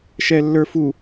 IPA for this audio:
ʃɛlːə˞fu

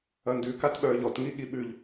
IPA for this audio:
ɐndʉkatɓœːʎ ɔtŋi ɠiɓʉʎ

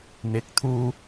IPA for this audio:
n̪ɪ˨˥k̚t̪ʰuː˧

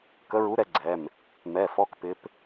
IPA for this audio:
kə˧˥ɹu˧˥ɾɛ˧˥ ɡ͡ǀɛ˩˧˩m | mɛ˩˧˩fɔ˧˥kpɪ˧˥p

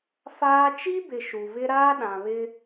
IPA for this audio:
faː˦ t͡ʃi˦bɪ˨ ʃu˨vɪ˦ ɾaː˦ɗã˨βɪ˦

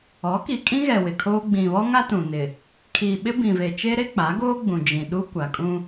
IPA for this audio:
ɔ˨˦ki˨ kʼĩ˦ɣɛ˨ wɪ˨ kʰoː˦ ɡ͡bĩ˨βɔ˦ŋa˦ tũ˨nɪ˨ | kʰi˨ɓɪ˦bĩ˨ve˨ t͡ʃe˦ɾe˦k͡pa˨˦ɡoː˦ ɡ͡bũ˨d͡ʒĩ˨ ɗu˦kʷa˨kʼũ˦

